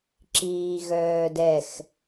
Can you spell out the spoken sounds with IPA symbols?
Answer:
ǁ iː ɣ œː d ɛ x

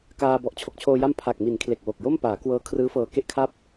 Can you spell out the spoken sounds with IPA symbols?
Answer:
k aː˧ b ɔ˨˩ ʔ t͡ɕʰ o˨˩ k̚ t͡ɕʰ oː˧ j a˦˥ m pʰ a˨˩ k̚ m i˩˦ n kʰ l e˨˩ k̚ w o˨˩ k̚ j o˥˩ m p aː˩˦ k w ɤː˦˥ kʰ r ɯː˦˥ f ɤː˧ k e˥˩ ʔ kʰ a˥˩ p̚

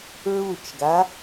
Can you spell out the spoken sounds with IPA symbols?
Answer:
ɹ u t͡ʃ ɡ a

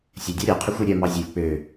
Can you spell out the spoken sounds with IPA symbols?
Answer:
sʲ œ dʲ ɑ ɾʲ ɑ qʰ ʉ xʷ ʉ ɾʲ œ m ɑ zʲ ɵ lʲ k͡p ø

